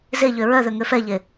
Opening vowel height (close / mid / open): mid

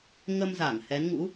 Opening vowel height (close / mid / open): mid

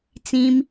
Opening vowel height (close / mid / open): close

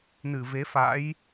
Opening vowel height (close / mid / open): close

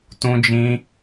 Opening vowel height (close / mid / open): close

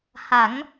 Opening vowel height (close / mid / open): open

